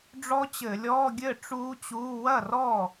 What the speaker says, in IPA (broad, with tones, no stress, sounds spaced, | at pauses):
ɖ͡ʐ ɔ˦˥ t͡ɕ ɘ˧˩˧ lʲ ɔː˧˥˧ ɡʲ ɘ˥˩ ʈ͡ʂ uː˦˥ t͡ɕ uː˧˥˧ w ɐ˥˩ r ɔ˥˩